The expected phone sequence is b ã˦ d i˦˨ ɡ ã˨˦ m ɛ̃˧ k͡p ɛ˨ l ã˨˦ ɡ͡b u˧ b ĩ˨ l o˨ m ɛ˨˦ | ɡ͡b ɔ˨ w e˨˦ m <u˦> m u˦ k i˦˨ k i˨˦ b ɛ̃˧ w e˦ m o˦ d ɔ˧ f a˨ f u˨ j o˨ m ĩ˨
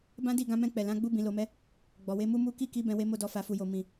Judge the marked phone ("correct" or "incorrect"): correct